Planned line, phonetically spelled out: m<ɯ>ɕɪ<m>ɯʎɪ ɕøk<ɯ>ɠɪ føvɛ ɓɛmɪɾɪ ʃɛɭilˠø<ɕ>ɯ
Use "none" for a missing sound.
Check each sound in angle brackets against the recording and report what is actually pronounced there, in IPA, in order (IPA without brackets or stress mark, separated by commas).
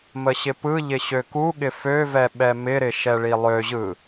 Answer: ə, p, u, ʑ